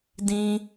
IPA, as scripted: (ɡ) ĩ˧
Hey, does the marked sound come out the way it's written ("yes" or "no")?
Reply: no